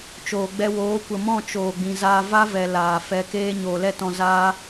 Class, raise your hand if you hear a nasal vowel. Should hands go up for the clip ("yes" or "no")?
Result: yes